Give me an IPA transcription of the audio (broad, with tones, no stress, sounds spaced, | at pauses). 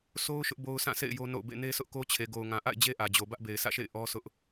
sʰ o˦ ʊ̯ ʃ ʊ˦ ʔ b o˦ ʊ̯ s ã˦˨ sʰ ḛ˦˨ ɪ̯ j o˦ n o̰˦˨ ʊ̯ b ḛ˦˨ n e˦ s ʊ˦ ʔ k o˦ t͡ɕʰ e˨ ɡ o˨ ʊ̯ ŋ ã˨ ʔ a̰˦˨ ɪ̯ d͡ʑ e˦ ʔ ä˨ d͡ʑ o˨ b ä˦ ʔ b e˨ ɪ̯ sʰ ä̰˦˨ ʃ ḛ˦˨ ɪ̯ ʔ ɔ˦ s ʊ˦ ʔ